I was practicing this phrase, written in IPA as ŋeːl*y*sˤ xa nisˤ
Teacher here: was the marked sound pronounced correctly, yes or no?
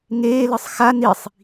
no